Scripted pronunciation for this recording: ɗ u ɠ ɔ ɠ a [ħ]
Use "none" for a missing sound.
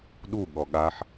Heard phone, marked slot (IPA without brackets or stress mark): ħ